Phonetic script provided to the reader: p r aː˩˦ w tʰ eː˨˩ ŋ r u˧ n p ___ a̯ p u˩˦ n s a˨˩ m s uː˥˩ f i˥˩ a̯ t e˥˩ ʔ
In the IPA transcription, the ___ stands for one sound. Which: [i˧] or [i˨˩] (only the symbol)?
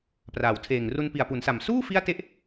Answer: i˨˩